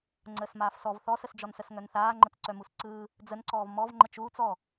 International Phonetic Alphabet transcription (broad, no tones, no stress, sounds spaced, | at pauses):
ŋ͡ǀ əː s m aː f s ɔ v θ ɔ s ə s d͡ʒ ɔ n s ə s ŋ œ n θ aː ŋ͡ǃ ə t͡s ǀ œ m u s ǀ ɯː | d͡z ə n ǀ ɔː v m ɔ v ŋ͡ǃ ə t͡ʃ uː t͡s ɔ